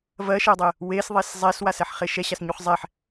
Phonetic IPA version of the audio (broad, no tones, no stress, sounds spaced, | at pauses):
v ɜ ʃ ɜ dˤ ɛ | w e s ðˤ e s zˤ ɛ s w a s ɛ ħ χ e ʃ ɛ ɕ a s ɲ u χ zˤ ɛ ħ